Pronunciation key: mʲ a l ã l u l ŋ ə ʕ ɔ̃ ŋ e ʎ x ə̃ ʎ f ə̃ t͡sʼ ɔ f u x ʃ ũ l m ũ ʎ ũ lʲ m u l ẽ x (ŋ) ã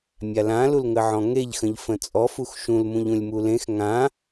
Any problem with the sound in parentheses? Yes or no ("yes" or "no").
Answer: no